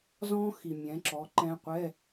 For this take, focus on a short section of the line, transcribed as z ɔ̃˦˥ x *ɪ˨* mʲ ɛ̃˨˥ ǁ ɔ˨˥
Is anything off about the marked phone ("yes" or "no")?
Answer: yes